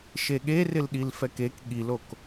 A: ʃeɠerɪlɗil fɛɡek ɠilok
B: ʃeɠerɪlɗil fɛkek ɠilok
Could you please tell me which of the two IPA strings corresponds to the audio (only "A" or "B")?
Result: B